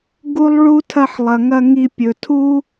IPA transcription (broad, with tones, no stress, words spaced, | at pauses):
ɡu˦lˠɭu˦ tʰɐ˦ħ lˠɐ˨ ŋɐ˧ ŋi˧ pʲɵ˨tʰu˦